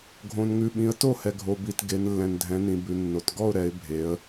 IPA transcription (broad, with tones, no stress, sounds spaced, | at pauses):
ɡʱ õ˨ n ŋ ʉ˨ ɓ ĩ˨˦ ə̯ t o˥˨ h ɛ˨ ɡʱ o˨ b i˨ t ɡ e˨˦ n lː ɛ̃˨ n dʱ ɛ̃˨˦ n ĩ˨ b ʉ˨ nː o˨ t ɡ ɔ˥˨ ʊ̯ ɾ ɛ˨˦ ɪ̯ bʱ e˨˦ ə̯